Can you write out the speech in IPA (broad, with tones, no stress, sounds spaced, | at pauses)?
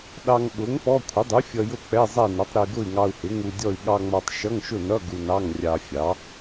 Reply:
ɗ ɑ˧ ŋ ɓ ʊ˩˥ ŋ p ɔ˧˥˧ kʷʰ ɪ˩˥ dˤ u˩˥ fʲ ʌ˧ j ʊ˥˨ k͡p ɛ˧˥˧ zˤ ɛ˥˨ n ʌ˩˥ tˤ ɾ i˧ ɡ ʊ˥˨ i̯ ŋ ɑ˧ u̯ h ɪ˩˥ ŋ u˧ dʲ ɔ˥˨ i̯ ɠ ɑ˧ ŋ͡m ɔ˧ tˤ ʃ ʌ˧˥˧ ŋ ʃ ʊ˥˨ n ʌ˧˥˧ ɡ u˧ n ɑ˧˥˧ ŋ rʲ ɑ˧ fʲ ɑ˩˥